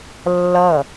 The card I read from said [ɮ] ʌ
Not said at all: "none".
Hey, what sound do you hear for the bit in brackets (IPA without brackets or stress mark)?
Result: lː